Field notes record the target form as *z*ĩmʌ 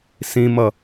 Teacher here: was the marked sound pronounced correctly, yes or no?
no